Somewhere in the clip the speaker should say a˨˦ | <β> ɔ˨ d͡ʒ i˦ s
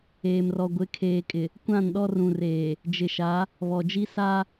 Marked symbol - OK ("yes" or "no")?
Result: yes